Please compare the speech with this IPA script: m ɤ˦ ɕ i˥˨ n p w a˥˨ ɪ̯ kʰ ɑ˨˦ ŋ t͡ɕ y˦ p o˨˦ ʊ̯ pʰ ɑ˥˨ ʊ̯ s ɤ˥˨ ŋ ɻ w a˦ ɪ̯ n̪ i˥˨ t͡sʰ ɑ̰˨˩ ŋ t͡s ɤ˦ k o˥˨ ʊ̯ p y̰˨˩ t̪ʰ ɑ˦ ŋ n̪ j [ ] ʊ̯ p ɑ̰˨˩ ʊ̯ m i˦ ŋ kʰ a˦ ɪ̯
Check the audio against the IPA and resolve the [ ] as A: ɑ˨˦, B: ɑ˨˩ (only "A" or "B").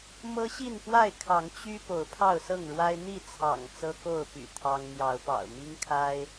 A